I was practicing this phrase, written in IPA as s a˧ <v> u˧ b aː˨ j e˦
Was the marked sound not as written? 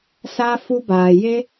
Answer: yes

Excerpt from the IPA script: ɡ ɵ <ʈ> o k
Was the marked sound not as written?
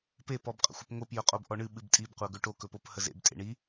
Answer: no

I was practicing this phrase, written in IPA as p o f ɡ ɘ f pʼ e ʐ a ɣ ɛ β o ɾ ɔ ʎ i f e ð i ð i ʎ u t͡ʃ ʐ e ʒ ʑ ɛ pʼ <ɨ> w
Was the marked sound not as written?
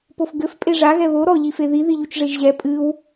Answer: no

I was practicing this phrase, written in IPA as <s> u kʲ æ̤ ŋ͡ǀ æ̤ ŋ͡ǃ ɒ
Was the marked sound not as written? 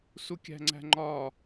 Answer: no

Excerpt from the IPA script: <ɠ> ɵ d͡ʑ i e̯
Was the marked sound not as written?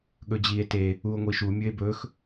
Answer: no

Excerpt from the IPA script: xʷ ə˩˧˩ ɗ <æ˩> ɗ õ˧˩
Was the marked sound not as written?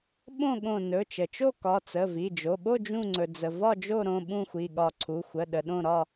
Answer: yes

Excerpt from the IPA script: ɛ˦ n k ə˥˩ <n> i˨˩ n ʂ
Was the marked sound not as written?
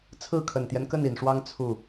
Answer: no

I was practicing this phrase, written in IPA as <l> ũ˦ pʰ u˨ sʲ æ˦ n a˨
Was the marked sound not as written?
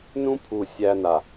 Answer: yes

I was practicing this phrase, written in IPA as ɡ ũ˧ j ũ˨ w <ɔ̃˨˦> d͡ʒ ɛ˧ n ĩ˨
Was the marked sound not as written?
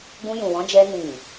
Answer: no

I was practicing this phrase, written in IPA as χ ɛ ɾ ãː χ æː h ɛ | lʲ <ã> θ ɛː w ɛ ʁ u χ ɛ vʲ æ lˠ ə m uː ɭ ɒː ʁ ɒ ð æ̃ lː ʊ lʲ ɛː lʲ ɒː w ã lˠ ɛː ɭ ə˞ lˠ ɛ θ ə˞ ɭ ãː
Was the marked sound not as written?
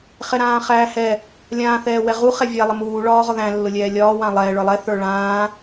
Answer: yes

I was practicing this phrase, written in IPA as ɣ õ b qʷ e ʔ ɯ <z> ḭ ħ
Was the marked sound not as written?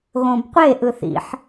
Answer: yes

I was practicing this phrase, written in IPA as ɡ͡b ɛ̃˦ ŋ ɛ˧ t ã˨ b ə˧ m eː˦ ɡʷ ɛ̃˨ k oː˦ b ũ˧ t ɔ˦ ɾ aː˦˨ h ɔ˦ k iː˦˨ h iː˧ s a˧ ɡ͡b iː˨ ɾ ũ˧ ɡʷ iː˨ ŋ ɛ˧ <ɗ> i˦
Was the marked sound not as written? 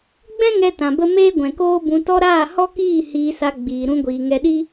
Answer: no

